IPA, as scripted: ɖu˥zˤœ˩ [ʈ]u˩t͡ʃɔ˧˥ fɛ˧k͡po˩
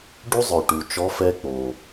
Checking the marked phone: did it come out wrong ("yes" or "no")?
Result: no